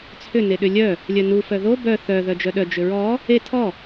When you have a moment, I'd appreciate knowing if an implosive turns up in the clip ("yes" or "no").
yes